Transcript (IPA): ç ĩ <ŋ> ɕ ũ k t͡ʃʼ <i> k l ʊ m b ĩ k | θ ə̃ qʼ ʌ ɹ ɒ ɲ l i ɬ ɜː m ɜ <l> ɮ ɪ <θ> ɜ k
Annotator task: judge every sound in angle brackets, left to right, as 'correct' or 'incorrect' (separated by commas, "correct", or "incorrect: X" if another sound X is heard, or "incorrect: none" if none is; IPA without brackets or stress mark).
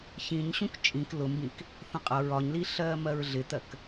incorrect: ɲ, incorrect: ĩ, incorrect: ɹ, incorrect: t̪